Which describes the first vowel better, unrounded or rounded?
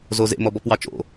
rounded